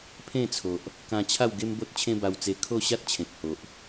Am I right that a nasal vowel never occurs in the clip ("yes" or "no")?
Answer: no